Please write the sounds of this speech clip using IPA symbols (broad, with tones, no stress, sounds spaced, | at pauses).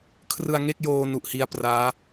kʰ r ɯ˧ a̯ ŋ e˥˩ k̚ j oː˧ n u˨˩ ʔ h i˧ a̯ p r aː˦˥